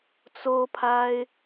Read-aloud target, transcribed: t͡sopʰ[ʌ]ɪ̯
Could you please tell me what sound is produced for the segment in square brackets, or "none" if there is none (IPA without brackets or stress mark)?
a